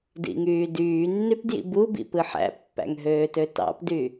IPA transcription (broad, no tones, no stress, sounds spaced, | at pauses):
d ḭ ŋ yː d yː nː y p d j ḭ b u b ḭ p ɯ ħ æ̰ pː æ̰ ŋ ɦ øː t ø t ɑ̰ p d y